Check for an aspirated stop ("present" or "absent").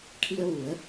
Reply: present